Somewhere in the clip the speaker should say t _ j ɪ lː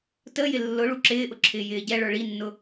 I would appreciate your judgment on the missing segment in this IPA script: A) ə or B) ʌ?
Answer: A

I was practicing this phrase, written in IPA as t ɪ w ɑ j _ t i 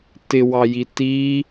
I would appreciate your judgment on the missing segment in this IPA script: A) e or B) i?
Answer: B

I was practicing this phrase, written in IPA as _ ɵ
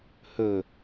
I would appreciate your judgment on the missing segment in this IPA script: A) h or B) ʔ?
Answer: A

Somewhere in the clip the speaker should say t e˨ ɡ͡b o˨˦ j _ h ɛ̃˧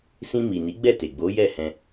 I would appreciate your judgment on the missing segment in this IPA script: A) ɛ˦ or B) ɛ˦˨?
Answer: B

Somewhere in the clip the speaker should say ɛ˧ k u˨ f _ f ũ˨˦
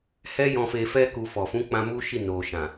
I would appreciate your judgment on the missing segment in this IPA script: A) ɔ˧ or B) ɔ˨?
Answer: B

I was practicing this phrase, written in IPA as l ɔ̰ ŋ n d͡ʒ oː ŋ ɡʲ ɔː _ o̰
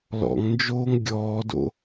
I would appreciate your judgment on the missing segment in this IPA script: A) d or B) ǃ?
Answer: A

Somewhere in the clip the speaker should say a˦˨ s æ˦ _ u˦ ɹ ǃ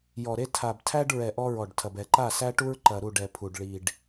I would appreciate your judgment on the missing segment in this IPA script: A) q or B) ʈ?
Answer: B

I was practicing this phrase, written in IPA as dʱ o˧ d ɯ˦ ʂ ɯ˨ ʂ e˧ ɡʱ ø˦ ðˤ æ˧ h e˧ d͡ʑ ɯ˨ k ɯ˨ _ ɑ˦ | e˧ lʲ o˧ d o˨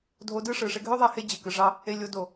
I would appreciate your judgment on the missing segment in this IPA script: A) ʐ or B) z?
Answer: A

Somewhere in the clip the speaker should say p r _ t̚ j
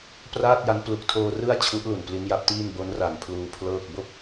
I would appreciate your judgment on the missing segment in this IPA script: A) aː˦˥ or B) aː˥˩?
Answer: B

